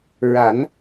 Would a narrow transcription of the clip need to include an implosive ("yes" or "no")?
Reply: no